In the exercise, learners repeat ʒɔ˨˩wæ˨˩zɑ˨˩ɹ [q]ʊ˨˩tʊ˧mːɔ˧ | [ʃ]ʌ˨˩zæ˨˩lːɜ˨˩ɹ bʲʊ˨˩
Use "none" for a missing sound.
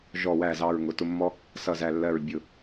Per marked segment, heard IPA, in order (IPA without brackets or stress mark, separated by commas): ŋ, s